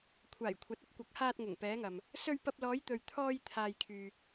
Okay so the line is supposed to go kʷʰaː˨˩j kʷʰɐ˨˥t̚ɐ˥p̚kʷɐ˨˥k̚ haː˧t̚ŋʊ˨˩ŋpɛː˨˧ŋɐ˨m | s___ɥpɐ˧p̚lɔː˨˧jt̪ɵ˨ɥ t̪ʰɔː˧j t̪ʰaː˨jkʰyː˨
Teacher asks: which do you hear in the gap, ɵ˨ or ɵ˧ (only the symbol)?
ɵ˧